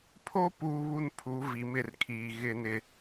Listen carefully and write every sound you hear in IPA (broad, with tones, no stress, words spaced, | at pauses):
pʰo˦ puː˦βu˦n pʰu˨˦vi˨mɪ˦˨rkʰiː˨ ɣɪ˦nɪ˦